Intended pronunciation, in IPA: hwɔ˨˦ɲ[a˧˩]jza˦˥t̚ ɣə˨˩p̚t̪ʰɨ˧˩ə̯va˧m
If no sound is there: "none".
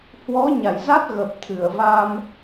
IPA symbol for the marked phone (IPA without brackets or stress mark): a˧˩